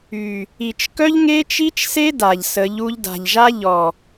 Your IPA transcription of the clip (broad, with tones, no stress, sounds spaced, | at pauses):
y˨ | i˨ t͡ʃ k œ˦ ʎ ŋ e˦ t͡ʃ i˦ t͡ʃ s e˦ d a˨ ʎ s ə˨˦ ʎ u˧ ʎ d a̤˨ ʎ ʒ a˦ ʎ ɔ˨